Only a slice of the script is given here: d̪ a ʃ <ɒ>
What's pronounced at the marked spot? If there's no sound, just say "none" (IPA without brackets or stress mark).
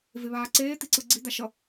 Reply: ʌ